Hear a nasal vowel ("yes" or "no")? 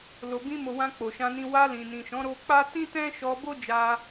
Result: yes